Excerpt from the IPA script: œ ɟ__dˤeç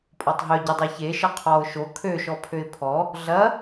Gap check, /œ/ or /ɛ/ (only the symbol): ɛ